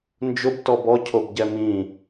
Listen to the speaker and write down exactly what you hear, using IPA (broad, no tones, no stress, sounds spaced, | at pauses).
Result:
n d͡ʒ ʊ b t ɔ b ɔ cʰ o b ɟ ɛ m ĩ